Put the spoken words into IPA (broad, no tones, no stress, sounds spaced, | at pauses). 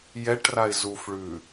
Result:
j ɛ ʈ r a ɪ̯ z u f ɭ ʉ